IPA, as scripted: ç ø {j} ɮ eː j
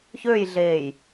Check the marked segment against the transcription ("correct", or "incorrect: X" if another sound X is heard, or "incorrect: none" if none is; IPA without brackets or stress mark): correct